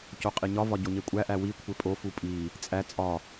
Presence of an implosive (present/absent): absent